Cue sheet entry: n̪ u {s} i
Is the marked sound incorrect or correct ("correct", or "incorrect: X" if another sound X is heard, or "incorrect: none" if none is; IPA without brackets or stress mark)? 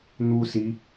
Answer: correct